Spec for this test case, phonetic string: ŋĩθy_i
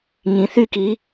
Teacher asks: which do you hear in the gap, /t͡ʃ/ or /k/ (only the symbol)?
k